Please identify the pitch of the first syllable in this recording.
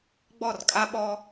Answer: falling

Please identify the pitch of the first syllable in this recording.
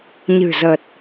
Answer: low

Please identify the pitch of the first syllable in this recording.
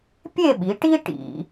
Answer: falling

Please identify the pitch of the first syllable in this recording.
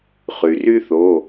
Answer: low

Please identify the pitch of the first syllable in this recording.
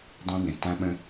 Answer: high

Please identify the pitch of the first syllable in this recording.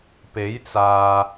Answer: rising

